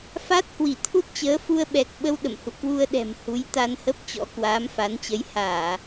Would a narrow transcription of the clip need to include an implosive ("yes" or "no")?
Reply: yes